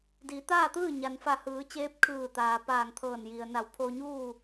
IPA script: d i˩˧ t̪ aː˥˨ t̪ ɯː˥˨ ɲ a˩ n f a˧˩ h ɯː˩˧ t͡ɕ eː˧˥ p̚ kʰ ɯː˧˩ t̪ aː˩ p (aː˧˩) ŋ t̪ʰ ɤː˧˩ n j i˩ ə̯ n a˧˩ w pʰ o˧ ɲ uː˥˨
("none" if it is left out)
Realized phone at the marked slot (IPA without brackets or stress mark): aː˧˩